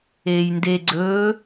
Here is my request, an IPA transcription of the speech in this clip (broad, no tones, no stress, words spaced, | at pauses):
eːjnde ɡ͡ǀɵː